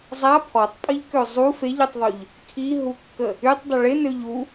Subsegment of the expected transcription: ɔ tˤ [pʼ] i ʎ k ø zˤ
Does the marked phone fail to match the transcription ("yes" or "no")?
no